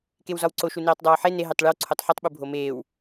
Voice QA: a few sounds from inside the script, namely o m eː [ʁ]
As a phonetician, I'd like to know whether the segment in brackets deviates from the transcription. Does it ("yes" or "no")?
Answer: yes